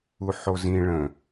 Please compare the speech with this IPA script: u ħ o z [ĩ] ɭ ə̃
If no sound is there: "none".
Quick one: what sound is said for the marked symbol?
ĩ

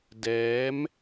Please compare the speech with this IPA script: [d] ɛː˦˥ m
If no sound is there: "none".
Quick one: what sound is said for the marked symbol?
d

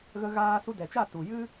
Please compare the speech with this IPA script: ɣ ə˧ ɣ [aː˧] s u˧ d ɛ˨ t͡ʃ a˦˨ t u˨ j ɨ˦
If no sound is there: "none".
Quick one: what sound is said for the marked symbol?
aː˧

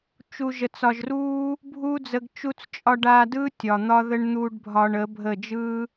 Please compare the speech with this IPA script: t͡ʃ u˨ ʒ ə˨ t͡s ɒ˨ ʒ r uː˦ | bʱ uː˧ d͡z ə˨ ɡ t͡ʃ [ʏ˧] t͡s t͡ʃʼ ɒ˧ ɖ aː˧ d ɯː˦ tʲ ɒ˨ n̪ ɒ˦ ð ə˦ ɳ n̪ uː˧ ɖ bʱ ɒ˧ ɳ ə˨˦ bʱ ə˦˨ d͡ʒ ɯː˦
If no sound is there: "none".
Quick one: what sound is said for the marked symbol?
u˧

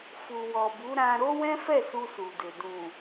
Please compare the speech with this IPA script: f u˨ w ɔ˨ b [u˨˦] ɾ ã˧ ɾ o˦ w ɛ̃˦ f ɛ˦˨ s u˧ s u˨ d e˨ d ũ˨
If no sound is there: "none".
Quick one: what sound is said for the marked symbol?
u˨˦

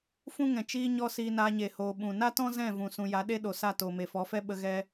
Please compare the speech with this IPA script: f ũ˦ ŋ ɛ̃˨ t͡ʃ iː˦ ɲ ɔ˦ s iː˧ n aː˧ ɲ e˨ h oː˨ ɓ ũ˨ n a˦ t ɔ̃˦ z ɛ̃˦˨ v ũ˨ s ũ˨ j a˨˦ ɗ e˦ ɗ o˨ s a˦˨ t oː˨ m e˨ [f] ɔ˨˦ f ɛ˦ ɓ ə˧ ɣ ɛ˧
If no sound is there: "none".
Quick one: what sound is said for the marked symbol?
f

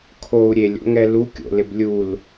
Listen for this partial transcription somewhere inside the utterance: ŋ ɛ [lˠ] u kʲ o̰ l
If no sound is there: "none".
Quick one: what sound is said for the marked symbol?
l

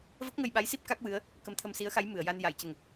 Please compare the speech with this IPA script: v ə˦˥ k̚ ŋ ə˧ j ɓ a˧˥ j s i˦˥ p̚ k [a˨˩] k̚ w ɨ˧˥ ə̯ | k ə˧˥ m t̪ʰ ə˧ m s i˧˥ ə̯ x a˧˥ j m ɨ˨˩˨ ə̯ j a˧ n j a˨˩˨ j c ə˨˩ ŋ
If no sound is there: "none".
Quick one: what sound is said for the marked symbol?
a˦˥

